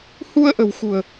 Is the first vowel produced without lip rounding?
no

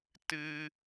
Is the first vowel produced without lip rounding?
yes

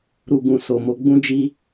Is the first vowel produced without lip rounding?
no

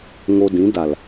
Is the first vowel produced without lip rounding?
no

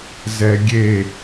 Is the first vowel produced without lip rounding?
yes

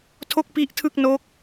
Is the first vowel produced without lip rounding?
no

